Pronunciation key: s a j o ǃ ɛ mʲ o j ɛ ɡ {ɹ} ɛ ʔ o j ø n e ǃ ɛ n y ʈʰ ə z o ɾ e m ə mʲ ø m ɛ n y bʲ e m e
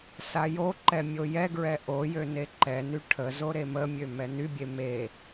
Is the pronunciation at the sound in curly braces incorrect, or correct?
correct